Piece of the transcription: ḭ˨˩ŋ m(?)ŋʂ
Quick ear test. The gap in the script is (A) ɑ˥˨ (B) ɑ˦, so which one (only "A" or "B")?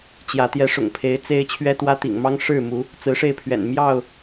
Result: B